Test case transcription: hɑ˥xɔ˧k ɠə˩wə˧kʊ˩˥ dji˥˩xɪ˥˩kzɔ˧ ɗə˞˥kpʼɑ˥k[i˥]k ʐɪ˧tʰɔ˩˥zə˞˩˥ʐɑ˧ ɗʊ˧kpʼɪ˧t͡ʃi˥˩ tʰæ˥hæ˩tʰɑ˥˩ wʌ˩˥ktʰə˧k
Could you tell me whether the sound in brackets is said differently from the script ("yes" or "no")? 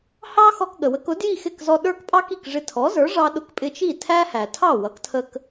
yes